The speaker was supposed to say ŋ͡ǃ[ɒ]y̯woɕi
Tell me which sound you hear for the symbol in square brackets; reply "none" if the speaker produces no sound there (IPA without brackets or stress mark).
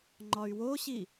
ɒ